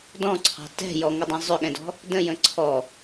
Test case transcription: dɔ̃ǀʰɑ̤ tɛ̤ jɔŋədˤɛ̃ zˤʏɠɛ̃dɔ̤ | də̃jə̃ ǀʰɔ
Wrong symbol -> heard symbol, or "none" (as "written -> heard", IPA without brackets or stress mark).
none